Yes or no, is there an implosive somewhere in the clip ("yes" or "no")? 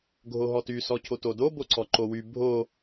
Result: no